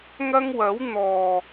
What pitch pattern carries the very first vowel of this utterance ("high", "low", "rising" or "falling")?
high